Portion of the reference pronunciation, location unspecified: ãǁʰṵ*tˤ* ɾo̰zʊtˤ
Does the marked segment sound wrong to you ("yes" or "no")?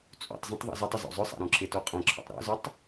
no